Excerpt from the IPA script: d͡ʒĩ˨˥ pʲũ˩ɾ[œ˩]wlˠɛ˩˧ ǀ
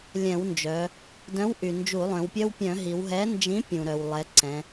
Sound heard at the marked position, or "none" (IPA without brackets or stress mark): œ˩